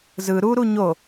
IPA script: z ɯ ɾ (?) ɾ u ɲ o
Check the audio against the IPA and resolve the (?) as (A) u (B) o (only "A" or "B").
A